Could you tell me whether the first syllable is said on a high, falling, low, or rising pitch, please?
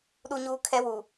high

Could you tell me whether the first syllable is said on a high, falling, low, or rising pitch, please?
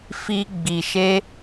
high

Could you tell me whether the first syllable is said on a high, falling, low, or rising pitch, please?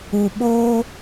low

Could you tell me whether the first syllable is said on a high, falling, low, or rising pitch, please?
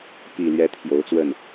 low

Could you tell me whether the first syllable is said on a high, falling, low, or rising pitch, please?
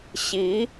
rising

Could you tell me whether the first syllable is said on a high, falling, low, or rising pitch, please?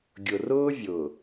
low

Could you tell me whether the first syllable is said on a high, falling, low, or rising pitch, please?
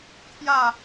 falling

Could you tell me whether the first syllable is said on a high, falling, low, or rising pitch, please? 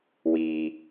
low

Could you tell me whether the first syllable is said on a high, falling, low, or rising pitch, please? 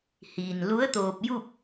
low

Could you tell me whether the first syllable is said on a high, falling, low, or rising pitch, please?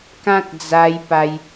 high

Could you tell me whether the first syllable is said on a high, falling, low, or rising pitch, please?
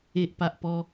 low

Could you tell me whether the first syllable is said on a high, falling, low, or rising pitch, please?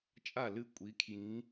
falling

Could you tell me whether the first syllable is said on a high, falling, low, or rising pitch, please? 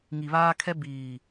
low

